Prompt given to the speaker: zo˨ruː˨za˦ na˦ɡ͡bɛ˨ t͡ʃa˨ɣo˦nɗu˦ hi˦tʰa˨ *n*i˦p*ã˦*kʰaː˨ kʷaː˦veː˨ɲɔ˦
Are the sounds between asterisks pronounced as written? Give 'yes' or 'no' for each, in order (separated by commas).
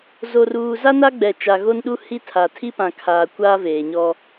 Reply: no, no